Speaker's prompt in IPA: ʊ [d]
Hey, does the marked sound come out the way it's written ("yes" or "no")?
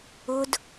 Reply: yes